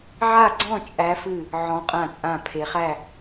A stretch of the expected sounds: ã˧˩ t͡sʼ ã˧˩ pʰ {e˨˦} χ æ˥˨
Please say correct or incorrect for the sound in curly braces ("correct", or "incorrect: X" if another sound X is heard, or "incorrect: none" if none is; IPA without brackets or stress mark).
correct